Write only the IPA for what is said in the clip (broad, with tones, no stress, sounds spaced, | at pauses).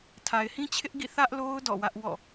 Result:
tʰ a˨ ɪ̯ h ĩ˦ t͡ɕʰ ɪ˦ ʔ ɡ ḭ˦˨ θ ä˦ ʔ l o˦ ʊ̯ d ɔ̰˦˨ w ä˦ ʔ w ɔ̰˦˨